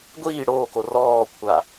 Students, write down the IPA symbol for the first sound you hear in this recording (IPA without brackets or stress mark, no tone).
ɡʷ